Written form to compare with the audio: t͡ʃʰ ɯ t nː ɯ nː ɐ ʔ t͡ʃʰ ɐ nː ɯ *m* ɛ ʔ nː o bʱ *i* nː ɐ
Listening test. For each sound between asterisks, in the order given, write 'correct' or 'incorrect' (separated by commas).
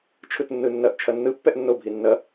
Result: incorrect, correct